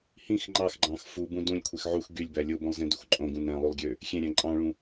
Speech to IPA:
h ĩ x ŋ͡ǃ ɑ x ɡ͡ǃ ɑ̃ x f u b ũ d ũ lʲ kʷʰ e x ʕ u x ɡ y lʲ b æ lʲ o b õ lˠ z ẽ d u x ǃʼ õ ɡ ũ n æ̃ lˠ y lˠ ɡʲ ø | xʲ ẽ ɾʲ æ̃ ǃʼ ɑ̃ ɭ ũ

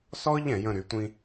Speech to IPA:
s ɔ˥ ʎ ɛ̃˧˩˧ j ə̃˥˧ ɾ y˨˦ tʷ ĩ˥

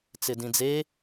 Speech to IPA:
t͡s ɪ d ĩ d͡z e

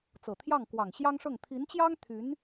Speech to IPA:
t͡s ɤ˨˩ t̪ʰ j ɑ˥˩ ŋ k w ɑ˨˩ ŋ ɕ j ɑ˥ ŋ ʂ ɤ˥˩ ŋ t̪ʰ i˧˥ n t͡ɕ j ɑ˥ ŋ t̪ʰ y˧˥ n

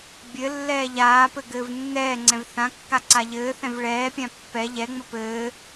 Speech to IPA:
bʲ ɘ lː ɛː ʎ aː p ɘ ɡ ɘː v nː ɛː ŋ͡ǀ ɛ̃ v θ ã kː a ǀ a ʎ ɘː θ ɛ̃ v ɭ ɛː pʲ ã pː ɛ ʎ ɛ ŋ͡m ə p ɘː

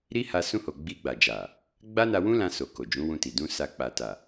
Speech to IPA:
ɾ i˦ h a˧ s ũ˧ h o˨ ɡ͡b i˧ ɡ͡b a˨ d͡ʒ a˨ | ɡ͡b a˦ n a˧ w ũ˦ l ã˧ s o˨ k o˨ d͡ʒ ũ˨˦ w ũ˧ t i˨ d ũ˧ s a˧ k͡p a˨ t a˨

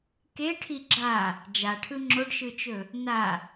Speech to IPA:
k e ʈʰ i ɡ͡ǁ a | d͡ʒ a ʈʰ ɯ ŋ͡ǁ o ɖ ʃ ɯ t͡ʃ ɵ | n a

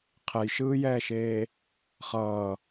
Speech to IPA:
qʰ ɛ j ʃ ɯː j ɛː ʃ eː | χ ʌː

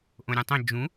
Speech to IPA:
ʔ õ ɾʲ ũ tˤ ẽ d͡ʒ ũ

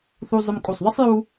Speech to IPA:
θ u˧ zˤ ʊ˧ m kʼ u˧˩ sˤ ðˤ ɪ˥ sˤ j u˥

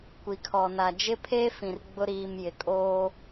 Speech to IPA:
kʷ i˨ kʰ ɔ˨ n a˨ d͡ʒ ɪ˦ pʰ eː˦ f ĩ˨ r ɡ͡b ʊ˦ ɾ iː˨ m j ɪ˨ kʼ oː˦

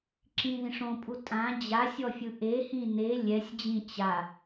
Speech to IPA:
ǁ ĩ ð ĩ ʂ õ pʼ u tʼ ã d͡ʑ a sʲ ɔ fʲ ɯ ʔ e h ĩ n e lʲ ɛ sʲ d͡ʑ ĩ t͡ɕ a

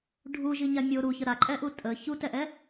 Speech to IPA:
ɖʱ u ʒ i ɲ a mʲ o ɾ u ç ə ɾ a ǃʼ ɛ ʔ u tʼ ə ç u t ɛ ʔ ɛ

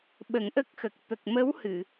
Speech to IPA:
ɓ ə˨˩˦ ŋ ʔ ə˦˥ k̚ x ə˨˩ k̚ t̪ ə˨˩ k̚ m ə˧˥ w h ɨ˨˩˨

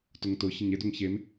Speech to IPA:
t ʊ ŋ t ʊ ç ə ɲ e d ʊ ŋ ç e m

